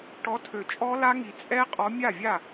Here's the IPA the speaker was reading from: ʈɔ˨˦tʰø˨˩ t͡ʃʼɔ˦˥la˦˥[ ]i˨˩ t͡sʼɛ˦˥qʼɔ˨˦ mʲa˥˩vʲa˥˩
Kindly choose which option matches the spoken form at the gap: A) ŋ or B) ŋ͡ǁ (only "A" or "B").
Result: A